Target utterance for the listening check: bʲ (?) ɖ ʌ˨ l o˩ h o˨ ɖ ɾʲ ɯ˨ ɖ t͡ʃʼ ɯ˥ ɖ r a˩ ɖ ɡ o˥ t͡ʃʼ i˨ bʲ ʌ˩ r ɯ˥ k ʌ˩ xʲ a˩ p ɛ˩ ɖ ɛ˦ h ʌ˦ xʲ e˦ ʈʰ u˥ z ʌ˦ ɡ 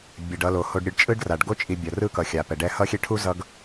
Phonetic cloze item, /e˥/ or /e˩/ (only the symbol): e˩